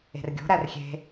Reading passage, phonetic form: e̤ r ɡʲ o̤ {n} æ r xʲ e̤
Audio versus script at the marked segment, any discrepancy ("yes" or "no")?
yes